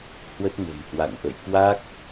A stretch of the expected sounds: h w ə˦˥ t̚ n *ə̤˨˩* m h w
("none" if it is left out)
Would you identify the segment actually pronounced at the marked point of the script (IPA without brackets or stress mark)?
ə̤˨˩